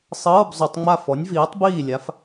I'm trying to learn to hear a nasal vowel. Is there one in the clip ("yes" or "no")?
no